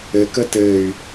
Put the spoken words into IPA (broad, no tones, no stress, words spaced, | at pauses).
ɘkə tɘy̯